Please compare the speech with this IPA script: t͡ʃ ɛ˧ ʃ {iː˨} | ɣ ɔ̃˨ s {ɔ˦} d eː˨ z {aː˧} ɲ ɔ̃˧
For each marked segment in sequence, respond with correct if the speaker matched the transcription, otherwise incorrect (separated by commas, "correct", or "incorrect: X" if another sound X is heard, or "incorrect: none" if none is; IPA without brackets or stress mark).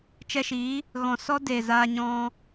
incorrect: iː˨˦, correct, correct